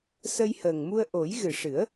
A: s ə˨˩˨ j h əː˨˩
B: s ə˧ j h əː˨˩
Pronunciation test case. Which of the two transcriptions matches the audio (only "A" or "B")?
B